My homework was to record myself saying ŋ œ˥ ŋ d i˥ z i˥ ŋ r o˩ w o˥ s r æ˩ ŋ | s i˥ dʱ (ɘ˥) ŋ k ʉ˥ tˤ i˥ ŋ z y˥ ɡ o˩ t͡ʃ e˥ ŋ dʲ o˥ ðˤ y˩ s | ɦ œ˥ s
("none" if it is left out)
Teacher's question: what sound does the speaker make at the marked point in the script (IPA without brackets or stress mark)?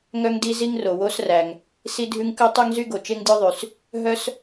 ʉ˥